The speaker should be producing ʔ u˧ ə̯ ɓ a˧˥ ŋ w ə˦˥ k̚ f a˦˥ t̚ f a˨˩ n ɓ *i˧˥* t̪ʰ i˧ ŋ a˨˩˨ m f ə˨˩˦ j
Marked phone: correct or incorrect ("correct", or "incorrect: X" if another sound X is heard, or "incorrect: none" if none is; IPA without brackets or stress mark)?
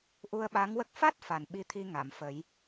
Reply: correct